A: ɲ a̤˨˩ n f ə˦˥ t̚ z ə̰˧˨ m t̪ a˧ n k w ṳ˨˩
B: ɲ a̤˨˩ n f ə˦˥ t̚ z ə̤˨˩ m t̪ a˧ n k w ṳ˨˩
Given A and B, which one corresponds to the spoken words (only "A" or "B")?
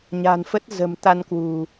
B